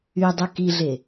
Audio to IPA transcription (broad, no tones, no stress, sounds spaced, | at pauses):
y dˤ u k i ɮ e